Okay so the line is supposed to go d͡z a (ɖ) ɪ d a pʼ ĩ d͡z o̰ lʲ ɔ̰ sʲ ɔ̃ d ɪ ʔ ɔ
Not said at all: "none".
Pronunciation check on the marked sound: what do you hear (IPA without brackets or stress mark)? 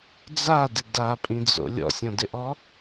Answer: d